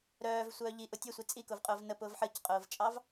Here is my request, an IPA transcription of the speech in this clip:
ɾ œː v sʷ œː ʎ i ʔ ʊ tʲ ə sʷ i t͡sʼ i k ʊ v qʼ ʊː v n ə p ʊː v ħ ə c qʼ ʊː v t͡ʃʼ ɑ v

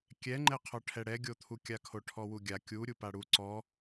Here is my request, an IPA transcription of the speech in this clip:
kʲ ɛ ŋ͡ǃ ɛ qʰ ɔ ʈʰ ɛ ɽ ɛ ɡʲ o t̪ʰ u kʲ a kʰ o ʈʰ ɔ w u ɡʲ a kʲ u ɾʲ u p a ɽ u ǀ ɔ

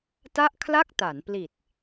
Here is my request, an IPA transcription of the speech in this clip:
t a˥˩ ʔ kʰ l a˥˩ k̚ t a˩˦ n p l i˨˩ t̚

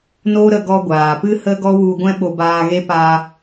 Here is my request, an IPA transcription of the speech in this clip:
n o˦ ɾ ə˧ ɡ ɔ˧ ɡʷ aː˨ p ɨ˦ h ə˦ ɡ ɔ˦ w u˧ ɡʷ ɛ̃˦ ɓ o˧ b aː˧ ɣ e˦ p a˧

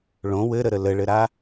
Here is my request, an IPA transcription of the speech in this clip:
ɭ õ w ɘ ɾ ə ɾ ə l ə ɭ ɘ ɾ a

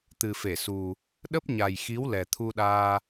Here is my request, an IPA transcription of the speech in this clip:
t̪ ɨ˨˩ f e˧˩ s u˨˩ | ɗ ə˦˥ p̚ ɲ a˨˩ j x i˨˦ w l ɛ˨˩ t̪ʰ u˧ ɗ aː˧

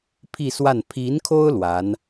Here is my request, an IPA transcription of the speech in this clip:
pʰ i˥˧ s w a˥˩ n pʰ i˧˥ n kʰ o˥ ʊ̯ l w a˧˥ n

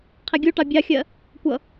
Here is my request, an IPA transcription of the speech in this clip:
qʰ æ ɡʲ u ʈ ɑ bʲ ɑ xʲ ɜ | kʷ ʌ

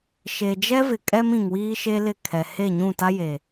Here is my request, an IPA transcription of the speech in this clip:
ʃ e˨ d͡ʒ ɛ˦ v ɪ˨ kʼ ɛ˦ m ĩ˨ ŋ w iː˦ ʃ e˦ l ɪ˦˨ kʰ ɛ˨ h e˦˨ ɲ ũ˦˨ t a˦ j e˨

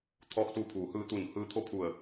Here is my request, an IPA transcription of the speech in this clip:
t̪ʰ ɔː˧ k̚ s u˧ pʰ uː˩˧ h ɯː˧ t̪ u˧˩ n h ɯː˧ t̪ʰ o˥˨ pʰ u˧˩ ə̯

